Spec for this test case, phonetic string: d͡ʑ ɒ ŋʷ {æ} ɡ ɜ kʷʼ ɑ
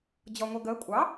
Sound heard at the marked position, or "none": æ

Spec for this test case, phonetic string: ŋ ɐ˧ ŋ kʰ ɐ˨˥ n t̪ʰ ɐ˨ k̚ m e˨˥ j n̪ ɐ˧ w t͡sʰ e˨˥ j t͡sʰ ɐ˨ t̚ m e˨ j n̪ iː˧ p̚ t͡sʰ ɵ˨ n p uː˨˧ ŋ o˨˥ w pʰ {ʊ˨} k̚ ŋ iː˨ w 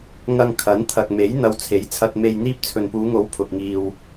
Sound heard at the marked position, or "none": ʊ˨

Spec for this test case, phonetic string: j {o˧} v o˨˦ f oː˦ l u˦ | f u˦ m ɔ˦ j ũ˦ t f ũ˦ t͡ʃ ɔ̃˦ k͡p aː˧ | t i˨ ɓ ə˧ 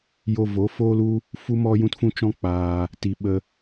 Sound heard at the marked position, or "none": o˧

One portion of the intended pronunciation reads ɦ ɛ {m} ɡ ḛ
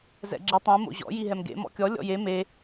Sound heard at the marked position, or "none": m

